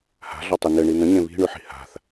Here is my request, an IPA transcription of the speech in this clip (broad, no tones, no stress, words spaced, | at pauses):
ha̤ɮɒtˤɘ nɘɳi n̪ə̃ɲẽ βi̤ɳʉħi̤ ha̤θ